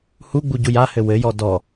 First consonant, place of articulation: glottal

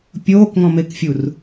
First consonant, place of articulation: labial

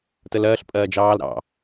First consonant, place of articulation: alveolar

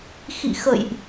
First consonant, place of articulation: velar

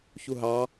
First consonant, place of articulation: palatal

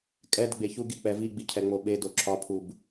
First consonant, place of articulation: velar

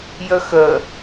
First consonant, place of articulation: palatal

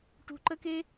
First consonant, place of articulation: retroflex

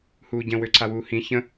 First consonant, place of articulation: glottal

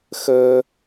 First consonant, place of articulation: velar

